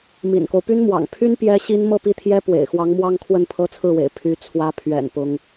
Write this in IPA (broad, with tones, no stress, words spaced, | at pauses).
mḭ˨˩nko˦ʊ̯ py˥nmwɑ̰˨˩ŋ pʰy˥n pjɛ˥ɕi˥n mɤ˥˧pi˥˩t̪ʰjɛ˥ pwḛ˨˩ɪ̯xwɑ˧˥ŋ mwɑ˥ŋkʰwə˥˩n pʰɤ˥t͡sʰɹ̩˥˩wḛ˨˩ɪ̯ pʰy˧˥ t͡sʰwä˧˥ pʰɥɛ̰˨˩n pʊ˥ŋ